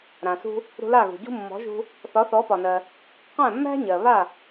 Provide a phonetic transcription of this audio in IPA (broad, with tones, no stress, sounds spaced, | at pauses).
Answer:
ɾ ã˩ s ṳ˧ | ɾ ṳ˧ l a˥˩ ɣ ṳ˩ ɟ ṳ˥ mː ɔ̤˩˥ ʒ ṳ˧ | θ ɒ˩˥ θ ɔ˩˥ p ɒ˩ n ɜ˩ | q æ̃˥˩ mː æ̤˥ ɲ ɜ˩ β a˥˩